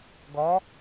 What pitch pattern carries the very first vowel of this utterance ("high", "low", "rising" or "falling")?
rising